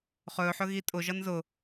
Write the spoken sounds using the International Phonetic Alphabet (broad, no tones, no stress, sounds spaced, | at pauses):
χ ɵ ħ ɵ ɣ i tʼ ʊ ʒ ʌ n z ʊ